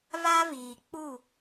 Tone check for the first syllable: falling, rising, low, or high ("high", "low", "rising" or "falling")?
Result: high